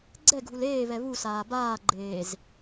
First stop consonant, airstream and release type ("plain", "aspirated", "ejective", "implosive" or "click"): click